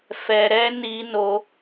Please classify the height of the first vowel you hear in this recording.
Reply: mid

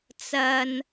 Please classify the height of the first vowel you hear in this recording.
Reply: low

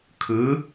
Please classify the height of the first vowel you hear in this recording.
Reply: high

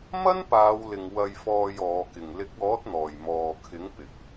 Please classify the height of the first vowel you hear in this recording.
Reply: low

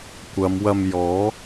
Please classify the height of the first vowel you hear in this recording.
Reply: low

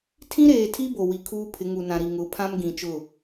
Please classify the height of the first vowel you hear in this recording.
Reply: high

